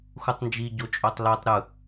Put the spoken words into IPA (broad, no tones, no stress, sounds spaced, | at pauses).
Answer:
x u tˤ n d͡ʒ i ɟ o t͡ʃʼ o tˤ l o tˤ ɾ ɯ